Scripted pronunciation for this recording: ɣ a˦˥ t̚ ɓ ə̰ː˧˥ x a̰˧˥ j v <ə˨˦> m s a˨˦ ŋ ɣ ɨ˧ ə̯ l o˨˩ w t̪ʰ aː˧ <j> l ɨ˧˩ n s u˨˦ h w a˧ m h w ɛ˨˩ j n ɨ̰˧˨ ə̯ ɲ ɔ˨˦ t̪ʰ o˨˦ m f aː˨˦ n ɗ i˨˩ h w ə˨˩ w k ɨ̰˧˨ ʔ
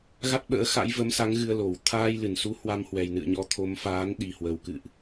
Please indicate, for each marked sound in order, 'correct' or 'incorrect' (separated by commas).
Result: correct, correct